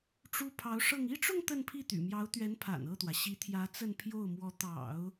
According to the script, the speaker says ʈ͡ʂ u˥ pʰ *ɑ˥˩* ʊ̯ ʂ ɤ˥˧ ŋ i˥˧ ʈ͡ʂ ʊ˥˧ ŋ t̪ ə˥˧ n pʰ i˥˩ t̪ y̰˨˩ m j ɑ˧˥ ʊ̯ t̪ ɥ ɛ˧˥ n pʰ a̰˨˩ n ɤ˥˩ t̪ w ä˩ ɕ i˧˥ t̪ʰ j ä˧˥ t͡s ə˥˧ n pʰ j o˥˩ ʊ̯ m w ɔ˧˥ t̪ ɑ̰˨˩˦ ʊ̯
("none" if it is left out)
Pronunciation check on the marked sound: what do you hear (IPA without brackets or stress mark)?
ɑ˧˥